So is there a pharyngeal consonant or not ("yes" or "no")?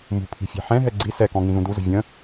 yes